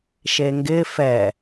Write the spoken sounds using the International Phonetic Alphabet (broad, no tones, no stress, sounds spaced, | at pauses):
ʃ e ŋ ɡ ɪ f ɛ